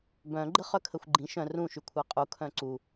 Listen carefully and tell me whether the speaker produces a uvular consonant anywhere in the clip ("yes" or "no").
yes